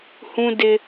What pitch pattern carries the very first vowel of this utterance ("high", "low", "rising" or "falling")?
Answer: high